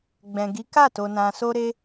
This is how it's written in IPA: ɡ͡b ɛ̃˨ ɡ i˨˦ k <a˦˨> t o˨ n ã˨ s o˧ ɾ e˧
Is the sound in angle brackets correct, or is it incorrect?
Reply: correct